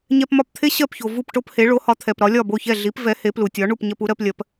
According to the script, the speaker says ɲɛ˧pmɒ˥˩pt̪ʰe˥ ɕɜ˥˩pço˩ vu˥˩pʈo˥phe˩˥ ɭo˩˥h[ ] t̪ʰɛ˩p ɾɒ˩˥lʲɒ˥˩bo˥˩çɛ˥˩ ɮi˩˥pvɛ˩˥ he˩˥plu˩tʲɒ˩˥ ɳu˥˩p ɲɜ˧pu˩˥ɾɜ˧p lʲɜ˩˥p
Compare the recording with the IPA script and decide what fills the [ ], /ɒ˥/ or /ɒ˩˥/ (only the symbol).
ɒ˩˥